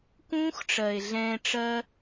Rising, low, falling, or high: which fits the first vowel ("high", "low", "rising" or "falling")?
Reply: high